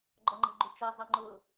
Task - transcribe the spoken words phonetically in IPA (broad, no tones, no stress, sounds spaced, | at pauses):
ɡ͡ǃ ɔ ŋ͡ǃ ɛ̤ ɡ͡ǃ u t͡ʃ ɛ zˤ ə ŋ͡ǃ ʊ